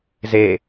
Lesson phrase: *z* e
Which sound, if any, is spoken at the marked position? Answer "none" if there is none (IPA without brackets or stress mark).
z